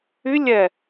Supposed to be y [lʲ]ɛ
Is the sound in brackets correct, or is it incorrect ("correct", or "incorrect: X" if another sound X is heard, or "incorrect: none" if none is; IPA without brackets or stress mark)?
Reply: correct